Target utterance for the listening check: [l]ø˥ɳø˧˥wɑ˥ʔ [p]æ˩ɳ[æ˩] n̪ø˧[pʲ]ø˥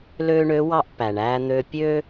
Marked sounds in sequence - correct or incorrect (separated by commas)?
correct, correct, incorrect, correct